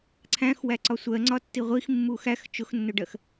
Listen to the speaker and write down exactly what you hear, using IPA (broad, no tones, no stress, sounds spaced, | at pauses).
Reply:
ǀʰ æ̃ x w æ ǀ ɒ sʷ ɜ ŋ͡ǀ ɒ tː i ʁʷ i x mː u x æ x t͡ʃ ʊ x nː ʊ ɖ ɜ x